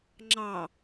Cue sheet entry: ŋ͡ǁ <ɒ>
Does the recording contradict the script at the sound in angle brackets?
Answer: yes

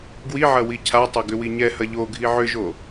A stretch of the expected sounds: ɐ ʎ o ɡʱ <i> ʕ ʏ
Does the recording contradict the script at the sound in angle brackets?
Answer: no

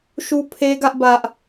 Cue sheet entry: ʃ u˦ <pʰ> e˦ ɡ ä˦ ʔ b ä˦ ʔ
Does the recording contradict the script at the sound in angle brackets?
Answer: no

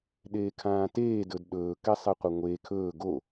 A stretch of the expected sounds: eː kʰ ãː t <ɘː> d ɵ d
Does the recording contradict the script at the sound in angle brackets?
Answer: yes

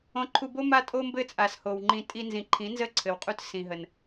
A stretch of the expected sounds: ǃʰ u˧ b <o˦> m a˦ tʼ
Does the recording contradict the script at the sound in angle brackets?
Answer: no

